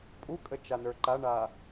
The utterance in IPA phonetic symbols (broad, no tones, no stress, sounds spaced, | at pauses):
pʼ u kʼ ə t͡ʃ a n ə˞ ǃ a ɳ a